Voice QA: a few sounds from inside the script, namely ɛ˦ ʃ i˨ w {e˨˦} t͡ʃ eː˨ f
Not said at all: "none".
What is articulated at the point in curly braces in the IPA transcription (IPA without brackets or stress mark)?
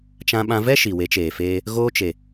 e˨˦